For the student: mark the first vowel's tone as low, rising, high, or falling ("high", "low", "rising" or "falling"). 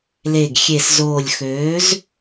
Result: low